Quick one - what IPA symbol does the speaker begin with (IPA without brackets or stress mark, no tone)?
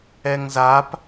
ɛ